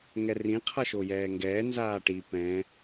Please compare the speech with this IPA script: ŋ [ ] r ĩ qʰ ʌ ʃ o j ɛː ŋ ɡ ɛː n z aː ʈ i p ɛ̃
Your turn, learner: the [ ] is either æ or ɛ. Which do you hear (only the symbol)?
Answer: ɛ